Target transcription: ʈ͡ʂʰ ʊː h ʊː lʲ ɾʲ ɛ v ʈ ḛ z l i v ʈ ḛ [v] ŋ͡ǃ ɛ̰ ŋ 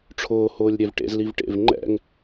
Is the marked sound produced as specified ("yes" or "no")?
yes